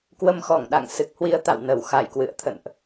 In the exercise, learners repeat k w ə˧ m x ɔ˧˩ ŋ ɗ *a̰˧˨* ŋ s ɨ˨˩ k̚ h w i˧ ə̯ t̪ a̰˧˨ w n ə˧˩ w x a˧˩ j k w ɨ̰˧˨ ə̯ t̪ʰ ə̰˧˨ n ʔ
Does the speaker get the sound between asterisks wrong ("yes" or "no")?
no